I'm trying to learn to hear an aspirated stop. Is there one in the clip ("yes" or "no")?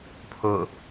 yes